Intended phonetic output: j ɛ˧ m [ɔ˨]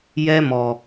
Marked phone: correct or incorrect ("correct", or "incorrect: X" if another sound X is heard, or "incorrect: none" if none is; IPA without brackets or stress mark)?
correct